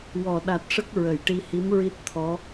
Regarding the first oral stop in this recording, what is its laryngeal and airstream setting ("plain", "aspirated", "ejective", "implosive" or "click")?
implosive